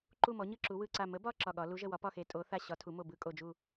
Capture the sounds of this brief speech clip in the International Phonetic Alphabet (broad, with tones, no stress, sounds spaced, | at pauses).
ǃ u˧˩ m ɔ˩˧ ɲ ɯ˧˩ ǁ u˩˧ w ɯ˧˩ ǀ a˧˩ m ə˩˧ b ɒ˧˩ ǁ ɒ˧˩ ɠ ɒ˩˧ l u˩˧ ʒ ə˧˩ w ɒ˩˧ p ɒ˧˩ x e˩˧ tʼ o˩˧ θ a˧˩ ɕ ɒ˩˧ tʰ u˩˧ m o˧˩ b ɯ˧˩ kʼ o˧˩ d͡ʒ u˧˩